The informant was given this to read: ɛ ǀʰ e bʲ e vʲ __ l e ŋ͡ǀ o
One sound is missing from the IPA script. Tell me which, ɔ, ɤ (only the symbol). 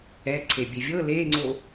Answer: ɤ